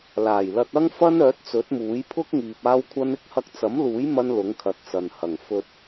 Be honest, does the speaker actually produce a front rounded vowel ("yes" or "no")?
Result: yes